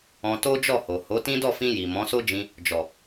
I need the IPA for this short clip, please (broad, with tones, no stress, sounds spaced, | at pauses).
ɔ̃˧ t o˦ d͡ʒ ɔ˦˨ h o˨ h o˨˦ t ĩ˦ d ɔ˦˨ f ĩ˧ j i˨ m ɔ̃˨˦ s o˦ d͡ʒ ĩ˧ | d͡ʒ ɔ˨